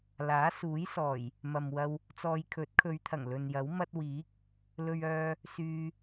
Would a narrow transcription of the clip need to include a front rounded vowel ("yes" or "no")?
yes